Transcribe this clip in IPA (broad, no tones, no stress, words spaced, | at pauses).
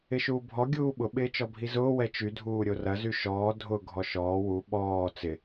ɪʃuːbʱɔ ɡʲuːɓʊ ɓɪːt͡ʃɔbʱizʊː wɛt͡ʃy dʱuːɾʲorɐ zyʃɔː dʱʊ ɡʱɔʃɔː wu ɓɔː t͡sɪ